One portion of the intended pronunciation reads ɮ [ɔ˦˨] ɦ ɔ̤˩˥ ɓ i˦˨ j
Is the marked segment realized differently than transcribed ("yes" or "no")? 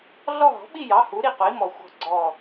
no